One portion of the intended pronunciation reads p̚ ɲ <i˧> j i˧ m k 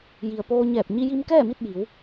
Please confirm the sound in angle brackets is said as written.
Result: yes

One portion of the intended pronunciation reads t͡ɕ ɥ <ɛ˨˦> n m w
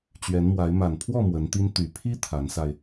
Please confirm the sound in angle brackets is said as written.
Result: yes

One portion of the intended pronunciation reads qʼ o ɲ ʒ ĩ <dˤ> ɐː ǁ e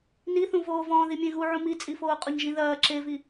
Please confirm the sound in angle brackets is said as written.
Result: no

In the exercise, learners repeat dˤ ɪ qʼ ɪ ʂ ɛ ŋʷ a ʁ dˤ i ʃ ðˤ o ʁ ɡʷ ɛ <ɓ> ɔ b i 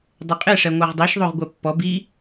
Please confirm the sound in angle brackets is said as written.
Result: no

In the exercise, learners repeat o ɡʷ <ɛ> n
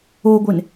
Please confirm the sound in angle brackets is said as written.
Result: no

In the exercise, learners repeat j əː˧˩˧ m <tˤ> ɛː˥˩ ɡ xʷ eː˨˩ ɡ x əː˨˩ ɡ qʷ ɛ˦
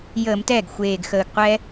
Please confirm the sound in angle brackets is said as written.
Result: no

